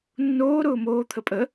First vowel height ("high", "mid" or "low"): mid